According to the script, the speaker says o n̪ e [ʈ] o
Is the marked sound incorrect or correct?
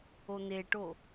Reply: correct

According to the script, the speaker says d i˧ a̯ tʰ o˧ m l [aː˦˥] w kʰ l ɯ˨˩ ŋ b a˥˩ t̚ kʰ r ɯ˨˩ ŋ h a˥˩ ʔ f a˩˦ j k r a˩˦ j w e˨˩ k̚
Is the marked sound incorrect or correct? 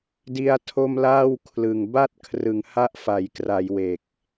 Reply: incorrect: aː˥˩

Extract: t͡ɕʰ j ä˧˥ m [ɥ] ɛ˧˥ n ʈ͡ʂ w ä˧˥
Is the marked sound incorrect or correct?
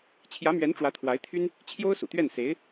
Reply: correct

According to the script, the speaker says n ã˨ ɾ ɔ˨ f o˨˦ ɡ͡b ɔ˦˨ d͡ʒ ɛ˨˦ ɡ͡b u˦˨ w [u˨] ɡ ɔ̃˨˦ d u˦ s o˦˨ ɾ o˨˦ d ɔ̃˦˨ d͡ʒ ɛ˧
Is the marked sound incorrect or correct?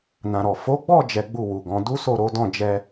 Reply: correct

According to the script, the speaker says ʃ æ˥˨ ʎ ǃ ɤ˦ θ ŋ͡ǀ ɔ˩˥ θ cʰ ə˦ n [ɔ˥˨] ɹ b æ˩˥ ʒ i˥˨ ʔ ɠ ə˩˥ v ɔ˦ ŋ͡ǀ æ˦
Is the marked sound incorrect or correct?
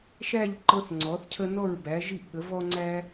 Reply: correct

